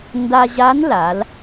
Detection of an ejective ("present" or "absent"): absent